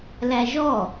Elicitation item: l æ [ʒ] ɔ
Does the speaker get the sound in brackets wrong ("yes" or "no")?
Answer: no